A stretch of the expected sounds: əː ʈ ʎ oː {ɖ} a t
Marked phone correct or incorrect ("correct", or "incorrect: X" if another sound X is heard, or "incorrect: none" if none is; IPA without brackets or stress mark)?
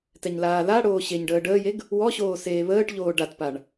correct